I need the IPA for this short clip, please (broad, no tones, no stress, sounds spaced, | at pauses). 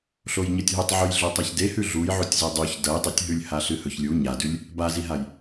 ɬ o j ɲ ɐ tʲ ɦ u tˤ ʕ ʉ j ɮ o tˤ a ç d e h ʉ ɮ u j ʕ u tʲ z ɵ dˤ ʉ ç d ɐ j dˤ e tʲ ɦ ʉ lʲ h a ɬ ɨ h ɵ ç lʲ u ɲ a d ʉ lʲ | b a z i ɦ a j